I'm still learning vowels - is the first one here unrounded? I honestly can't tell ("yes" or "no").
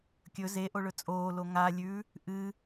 no